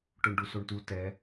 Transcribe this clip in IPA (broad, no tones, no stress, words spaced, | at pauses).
ʈoɳɖusoɳtu tɛ